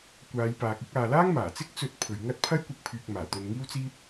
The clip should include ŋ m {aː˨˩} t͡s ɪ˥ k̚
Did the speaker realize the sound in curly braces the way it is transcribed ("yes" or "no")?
yes